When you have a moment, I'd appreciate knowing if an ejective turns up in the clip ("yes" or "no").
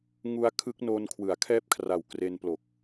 no